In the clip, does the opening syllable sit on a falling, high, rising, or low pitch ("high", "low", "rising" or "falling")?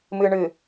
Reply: low